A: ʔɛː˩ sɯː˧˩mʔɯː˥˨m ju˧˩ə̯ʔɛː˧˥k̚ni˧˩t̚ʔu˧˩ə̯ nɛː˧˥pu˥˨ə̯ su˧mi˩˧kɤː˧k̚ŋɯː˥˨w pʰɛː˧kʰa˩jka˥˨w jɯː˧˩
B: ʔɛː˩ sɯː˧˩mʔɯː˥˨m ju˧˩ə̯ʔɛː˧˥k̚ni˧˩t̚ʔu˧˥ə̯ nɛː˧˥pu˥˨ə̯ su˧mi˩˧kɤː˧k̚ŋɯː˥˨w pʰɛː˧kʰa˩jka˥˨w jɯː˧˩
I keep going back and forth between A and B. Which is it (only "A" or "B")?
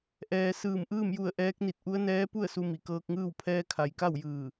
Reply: B